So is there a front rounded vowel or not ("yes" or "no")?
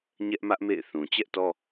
no